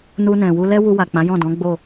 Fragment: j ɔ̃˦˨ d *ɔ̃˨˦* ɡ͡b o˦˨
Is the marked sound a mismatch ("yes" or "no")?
no